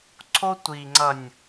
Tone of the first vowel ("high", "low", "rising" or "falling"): high